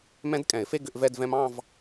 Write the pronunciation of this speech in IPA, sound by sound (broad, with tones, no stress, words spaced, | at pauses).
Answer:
mɛ̃˦˥dkʼɛ̃˨˩˦ɪ̯fe˥˧ ɡʏ˥˧ʔvɛ˥˧dvɛ̃˦˥m ɑ̃˥˧v